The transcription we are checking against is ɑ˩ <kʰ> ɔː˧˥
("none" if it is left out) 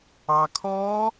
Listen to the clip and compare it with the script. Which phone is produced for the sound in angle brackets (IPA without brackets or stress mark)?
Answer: kʰ